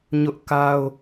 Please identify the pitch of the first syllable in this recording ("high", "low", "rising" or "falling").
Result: high